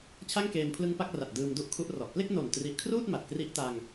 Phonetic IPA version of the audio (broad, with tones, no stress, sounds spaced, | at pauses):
t͡ɕʰ a˥˩ ŋ k eː˧ m pʰ l ɯ˦˥ ŋ p a˦˥ k̚ r a˨˩ t̚ d ɯː˧ m d u˥˩ ʔ kʰ u˦˥ ʔ r ɔ˨˩ ʔ p l e˥˩ k̚ n o˨˩ n t r i˨˩ ʔ kʰ r uː˥˩ t̚ m a˨˩ t̚ k r i˦˥ ʔ t a˧ ŋ